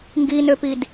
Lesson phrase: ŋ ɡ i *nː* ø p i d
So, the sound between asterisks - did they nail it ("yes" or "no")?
no